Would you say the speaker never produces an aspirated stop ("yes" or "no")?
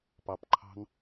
no